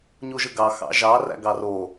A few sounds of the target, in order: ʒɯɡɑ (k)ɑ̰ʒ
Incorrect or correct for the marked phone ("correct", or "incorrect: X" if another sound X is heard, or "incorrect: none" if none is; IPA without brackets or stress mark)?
incorrect: x